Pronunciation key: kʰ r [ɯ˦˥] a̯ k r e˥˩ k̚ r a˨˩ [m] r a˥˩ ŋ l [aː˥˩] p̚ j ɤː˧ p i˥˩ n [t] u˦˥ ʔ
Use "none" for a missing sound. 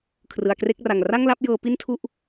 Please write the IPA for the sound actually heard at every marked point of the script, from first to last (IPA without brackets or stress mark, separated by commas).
ɯ˩˦, ŋ, a˥˩, tʰ